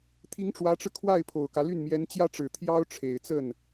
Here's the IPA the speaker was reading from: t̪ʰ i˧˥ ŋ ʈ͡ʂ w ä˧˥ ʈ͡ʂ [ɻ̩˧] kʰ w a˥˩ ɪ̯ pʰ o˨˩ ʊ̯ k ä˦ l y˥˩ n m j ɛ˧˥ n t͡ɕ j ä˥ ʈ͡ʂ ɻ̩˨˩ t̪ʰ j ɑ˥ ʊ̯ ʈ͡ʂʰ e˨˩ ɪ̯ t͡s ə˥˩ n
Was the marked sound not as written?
no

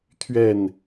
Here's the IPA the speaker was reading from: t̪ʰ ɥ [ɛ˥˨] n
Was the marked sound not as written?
no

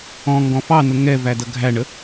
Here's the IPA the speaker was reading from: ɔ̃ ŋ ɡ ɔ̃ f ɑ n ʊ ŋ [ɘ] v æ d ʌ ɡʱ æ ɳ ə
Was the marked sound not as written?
yes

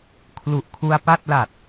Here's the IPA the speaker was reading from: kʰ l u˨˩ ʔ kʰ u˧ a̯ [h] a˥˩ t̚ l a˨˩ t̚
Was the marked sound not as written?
yes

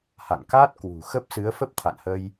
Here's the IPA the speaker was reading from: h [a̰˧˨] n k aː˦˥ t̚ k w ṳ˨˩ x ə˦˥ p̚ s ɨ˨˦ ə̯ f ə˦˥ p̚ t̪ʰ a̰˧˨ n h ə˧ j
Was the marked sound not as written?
no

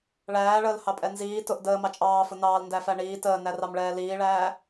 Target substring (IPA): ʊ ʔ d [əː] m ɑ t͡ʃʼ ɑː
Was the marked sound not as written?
no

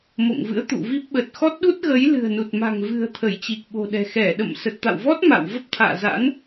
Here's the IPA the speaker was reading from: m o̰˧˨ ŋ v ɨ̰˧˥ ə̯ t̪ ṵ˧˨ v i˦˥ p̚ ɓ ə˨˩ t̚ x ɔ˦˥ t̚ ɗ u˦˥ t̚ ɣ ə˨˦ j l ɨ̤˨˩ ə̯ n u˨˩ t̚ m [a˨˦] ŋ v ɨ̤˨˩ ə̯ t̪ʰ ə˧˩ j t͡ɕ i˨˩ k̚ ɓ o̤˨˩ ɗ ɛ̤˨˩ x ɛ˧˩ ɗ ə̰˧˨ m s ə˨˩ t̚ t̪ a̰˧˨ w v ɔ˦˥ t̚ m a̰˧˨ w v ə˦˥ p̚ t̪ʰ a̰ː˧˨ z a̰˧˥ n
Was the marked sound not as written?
yes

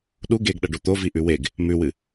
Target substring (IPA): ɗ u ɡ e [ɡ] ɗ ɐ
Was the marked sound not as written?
no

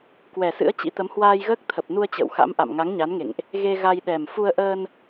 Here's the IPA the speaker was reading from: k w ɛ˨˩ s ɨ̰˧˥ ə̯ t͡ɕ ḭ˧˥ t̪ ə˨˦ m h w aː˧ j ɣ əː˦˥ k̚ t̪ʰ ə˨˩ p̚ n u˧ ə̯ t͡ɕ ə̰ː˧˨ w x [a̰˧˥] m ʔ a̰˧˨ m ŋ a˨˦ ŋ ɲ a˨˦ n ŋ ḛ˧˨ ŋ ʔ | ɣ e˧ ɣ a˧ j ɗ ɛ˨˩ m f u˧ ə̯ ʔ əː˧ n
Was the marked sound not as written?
no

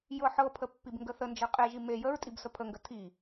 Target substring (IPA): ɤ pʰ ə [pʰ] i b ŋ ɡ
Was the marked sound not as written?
yes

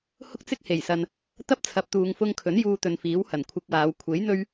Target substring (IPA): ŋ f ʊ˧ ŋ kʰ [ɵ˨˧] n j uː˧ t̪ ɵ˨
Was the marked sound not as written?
yes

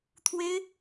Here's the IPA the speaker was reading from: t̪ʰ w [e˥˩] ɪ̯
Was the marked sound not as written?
yes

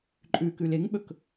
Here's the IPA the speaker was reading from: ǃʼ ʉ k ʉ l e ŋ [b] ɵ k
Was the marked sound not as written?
yes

